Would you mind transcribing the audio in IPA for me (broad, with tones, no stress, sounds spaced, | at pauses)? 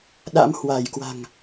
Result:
ɗ a̰˧˥ m h w a˧˩ j k w a̤˨˩ ŋ